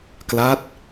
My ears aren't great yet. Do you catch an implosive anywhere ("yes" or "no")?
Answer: no